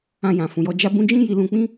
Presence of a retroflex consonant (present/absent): absent